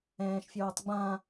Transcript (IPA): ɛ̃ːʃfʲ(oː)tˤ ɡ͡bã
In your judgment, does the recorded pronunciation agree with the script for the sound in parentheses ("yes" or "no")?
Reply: yes